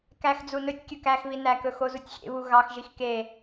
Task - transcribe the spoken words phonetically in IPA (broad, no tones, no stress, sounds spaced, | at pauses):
k æ x d͡z u n ɵ tʲ kʲ ɵ k æ x β i n æ k ɵ x o z u tʲ xʲ ḛ β u ɣ ɑ x ʒ i x k e